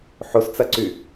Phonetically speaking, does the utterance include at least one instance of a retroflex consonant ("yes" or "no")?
no